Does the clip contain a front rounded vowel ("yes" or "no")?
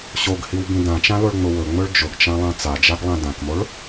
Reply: no